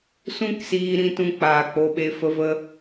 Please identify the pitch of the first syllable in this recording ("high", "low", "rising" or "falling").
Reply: high